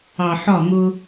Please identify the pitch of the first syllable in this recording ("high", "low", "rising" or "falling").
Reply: low